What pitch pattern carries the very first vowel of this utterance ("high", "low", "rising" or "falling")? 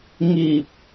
low